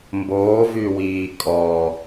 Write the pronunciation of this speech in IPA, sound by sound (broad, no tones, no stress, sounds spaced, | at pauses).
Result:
m b oː v y w iː kʼ ɔ